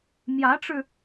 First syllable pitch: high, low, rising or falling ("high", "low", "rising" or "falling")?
rising